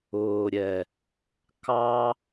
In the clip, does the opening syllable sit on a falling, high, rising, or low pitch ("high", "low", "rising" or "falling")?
low